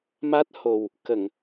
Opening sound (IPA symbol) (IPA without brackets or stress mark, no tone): m